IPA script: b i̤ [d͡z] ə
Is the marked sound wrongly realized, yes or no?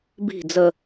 no